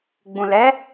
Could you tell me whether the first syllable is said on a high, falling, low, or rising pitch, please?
low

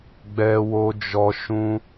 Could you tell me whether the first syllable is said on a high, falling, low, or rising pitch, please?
high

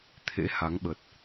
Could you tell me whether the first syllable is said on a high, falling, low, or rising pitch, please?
rising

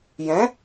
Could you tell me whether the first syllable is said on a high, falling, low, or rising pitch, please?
rising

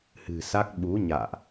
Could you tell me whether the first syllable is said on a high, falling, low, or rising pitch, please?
low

